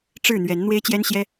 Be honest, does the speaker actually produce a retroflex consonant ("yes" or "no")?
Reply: yes